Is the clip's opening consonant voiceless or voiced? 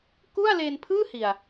voiceless